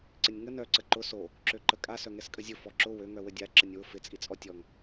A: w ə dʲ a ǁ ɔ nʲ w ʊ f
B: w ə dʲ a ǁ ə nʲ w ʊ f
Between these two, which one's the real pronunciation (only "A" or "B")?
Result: B